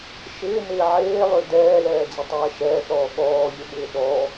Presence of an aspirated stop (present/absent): absent